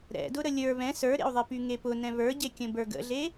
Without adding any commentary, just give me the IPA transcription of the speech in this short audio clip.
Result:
ɾ ɛ̰ d ʊ ɾ ə lʲ ə˞ β ɛ̃ s ə˞ ɾ ḛ u̯ ðˤ e p y ŋ e p ʊ n ɛ̃ β ə˞ ɟ e kʲ ə̃ b ə˞ ɡ ə̰ ɮ e

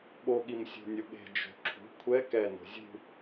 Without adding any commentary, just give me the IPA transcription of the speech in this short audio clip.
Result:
ɓ o ɠ i m sʲ o̤ nʲ o ɠ e̤ d͡ʒ o̤ ǁʰ ṳ kʷʰ ɛ k ɛ n o̤ zʲ ṳ

